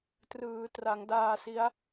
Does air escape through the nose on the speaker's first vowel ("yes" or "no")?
no